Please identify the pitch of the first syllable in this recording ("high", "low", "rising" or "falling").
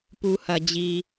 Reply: low